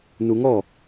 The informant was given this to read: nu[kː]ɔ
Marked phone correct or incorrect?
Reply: incorrect